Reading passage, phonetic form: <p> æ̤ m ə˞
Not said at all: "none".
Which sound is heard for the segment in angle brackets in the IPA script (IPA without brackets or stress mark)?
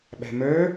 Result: ɓ